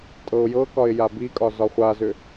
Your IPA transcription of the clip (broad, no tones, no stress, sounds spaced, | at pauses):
tʼ ɤ ʊ̯ j ɤ k ɒ ɪ̯ j a b i kʼ ɒ z ɒ χʷ a z ʏ